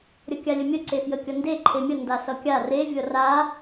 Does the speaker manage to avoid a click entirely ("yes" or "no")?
no